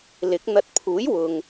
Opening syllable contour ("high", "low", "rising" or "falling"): rising